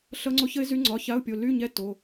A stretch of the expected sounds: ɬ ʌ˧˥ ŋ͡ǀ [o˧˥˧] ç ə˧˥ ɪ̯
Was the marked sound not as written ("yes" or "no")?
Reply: yes